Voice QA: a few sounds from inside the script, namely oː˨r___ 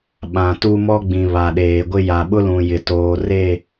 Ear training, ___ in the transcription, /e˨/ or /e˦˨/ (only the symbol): e˦˨